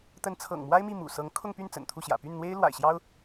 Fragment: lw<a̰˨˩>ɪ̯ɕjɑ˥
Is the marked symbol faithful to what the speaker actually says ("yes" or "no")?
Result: yes